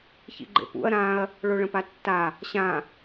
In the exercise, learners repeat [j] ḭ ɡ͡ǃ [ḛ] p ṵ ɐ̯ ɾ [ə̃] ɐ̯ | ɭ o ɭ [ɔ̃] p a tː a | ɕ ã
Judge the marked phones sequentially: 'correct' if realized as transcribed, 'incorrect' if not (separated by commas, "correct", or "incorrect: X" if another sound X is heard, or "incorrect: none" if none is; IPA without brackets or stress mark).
incorrect: ç, correct, incorrect: ã, incorrect: ə̃